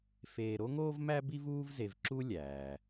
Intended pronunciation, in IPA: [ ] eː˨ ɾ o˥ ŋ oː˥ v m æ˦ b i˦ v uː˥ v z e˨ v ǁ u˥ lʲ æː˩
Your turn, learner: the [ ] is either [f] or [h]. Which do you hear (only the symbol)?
f